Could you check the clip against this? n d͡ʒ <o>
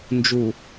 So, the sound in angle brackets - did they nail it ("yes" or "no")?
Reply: no